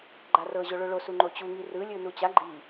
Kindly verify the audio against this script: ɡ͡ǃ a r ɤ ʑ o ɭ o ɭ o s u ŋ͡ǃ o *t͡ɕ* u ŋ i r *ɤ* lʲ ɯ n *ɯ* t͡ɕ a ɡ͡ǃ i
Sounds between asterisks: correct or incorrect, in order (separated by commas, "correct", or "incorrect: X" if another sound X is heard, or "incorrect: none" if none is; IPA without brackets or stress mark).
correct, incorrect: ɯ, incorrect: u